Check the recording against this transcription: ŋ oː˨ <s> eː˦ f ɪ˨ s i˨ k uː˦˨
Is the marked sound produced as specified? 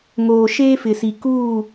no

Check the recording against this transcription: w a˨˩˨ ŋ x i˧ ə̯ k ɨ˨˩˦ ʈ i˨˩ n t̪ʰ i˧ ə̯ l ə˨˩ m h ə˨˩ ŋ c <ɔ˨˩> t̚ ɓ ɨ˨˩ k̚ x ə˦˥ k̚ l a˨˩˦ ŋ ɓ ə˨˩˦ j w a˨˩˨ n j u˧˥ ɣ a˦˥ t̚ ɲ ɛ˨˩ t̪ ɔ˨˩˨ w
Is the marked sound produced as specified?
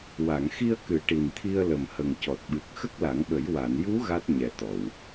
yes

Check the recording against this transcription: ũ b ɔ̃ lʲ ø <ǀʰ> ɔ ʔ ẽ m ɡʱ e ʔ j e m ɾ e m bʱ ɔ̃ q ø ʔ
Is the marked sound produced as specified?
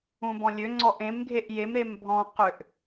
no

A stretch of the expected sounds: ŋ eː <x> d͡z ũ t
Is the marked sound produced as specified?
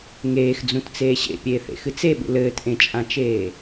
yes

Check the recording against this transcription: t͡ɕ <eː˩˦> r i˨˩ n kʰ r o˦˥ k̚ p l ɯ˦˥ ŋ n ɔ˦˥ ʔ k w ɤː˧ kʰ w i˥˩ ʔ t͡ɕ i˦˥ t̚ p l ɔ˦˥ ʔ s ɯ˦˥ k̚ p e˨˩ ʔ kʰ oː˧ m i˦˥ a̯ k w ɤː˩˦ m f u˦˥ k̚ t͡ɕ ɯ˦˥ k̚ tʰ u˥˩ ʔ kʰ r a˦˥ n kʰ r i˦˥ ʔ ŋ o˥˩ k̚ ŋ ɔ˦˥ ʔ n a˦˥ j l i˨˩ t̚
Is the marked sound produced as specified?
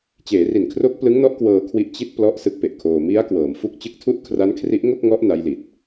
yes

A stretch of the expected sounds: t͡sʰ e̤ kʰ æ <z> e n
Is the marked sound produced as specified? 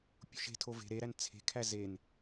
yes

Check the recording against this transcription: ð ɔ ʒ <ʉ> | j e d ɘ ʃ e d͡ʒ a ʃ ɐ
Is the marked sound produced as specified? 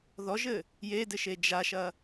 no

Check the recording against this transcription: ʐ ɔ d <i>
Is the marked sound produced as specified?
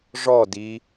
yes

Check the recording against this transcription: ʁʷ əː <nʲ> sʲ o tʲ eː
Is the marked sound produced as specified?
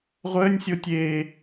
yes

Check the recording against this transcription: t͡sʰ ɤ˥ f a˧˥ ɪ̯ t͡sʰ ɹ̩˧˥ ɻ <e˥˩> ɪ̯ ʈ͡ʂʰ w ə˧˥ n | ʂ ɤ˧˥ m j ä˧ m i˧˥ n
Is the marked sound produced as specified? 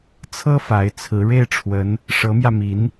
yes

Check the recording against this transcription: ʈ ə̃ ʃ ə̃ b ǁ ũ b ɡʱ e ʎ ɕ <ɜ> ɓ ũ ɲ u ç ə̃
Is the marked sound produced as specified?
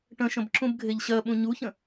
yes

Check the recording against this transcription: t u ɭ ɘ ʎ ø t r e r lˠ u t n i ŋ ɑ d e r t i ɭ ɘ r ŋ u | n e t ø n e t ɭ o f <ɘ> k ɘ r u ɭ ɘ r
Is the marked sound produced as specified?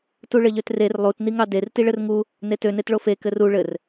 no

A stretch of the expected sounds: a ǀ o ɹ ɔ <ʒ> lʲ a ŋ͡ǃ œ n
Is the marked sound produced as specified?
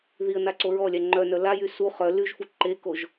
no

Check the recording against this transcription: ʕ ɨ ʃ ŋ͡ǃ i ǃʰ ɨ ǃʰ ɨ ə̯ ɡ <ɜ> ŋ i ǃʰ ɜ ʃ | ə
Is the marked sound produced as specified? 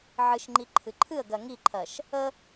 yes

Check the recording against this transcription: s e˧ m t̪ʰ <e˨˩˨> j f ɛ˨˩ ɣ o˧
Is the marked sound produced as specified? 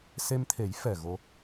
no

